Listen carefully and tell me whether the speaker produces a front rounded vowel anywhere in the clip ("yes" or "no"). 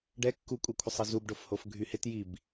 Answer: yes